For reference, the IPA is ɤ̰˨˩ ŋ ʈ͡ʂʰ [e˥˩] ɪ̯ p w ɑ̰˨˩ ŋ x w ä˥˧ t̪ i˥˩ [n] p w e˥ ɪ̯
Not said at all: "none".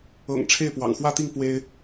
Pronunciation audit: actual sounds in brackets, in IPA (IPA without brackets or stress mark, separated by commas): e˥˩, ŋ